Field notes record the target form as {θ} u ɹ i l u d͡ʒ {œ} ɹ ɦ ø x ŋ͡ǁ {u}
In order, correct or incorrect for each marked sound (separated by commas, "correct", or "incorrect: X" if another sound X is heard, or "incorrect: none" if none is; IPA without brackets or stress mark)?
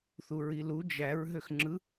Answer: correct, incorrect: æ, incorrect: ɯ